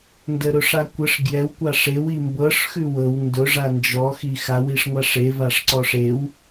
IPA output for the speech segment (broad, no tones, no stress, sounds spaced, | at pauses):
n d ə ɾ ʊ ʂ a kʷ ə ʂ ɡ j ɛ w kʷ a ʂ e w i m b ɤ ʂ x ʉ w ɤ w n d ʊ ʐ a n d͡ʒ ɔ x i x a w i ʂ ŋʷ a ʂ e v a ʂ ǀ ɔ ʂ e w